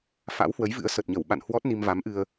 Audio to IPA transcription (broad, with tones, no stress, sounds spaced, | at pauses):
f a̰˧˥ w h w ə˨˦ j v ɨ̰˧˥ ə̯ s ə˨˩ t̚ ɲ ə˧˩ w ɓ a̰˧˨ n h w ɔ˦˥ t̚ n i˧ m v a˨˦ m ʔ ɨ˧ ə̯